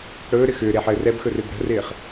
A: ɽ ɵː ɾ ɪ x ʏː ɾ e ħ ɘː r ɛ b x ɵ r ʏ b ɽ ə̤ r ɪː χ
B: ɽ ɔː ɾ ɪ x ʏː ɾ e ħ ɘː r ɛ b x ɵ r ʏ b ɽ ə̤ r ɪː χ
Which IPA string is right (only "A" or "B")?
A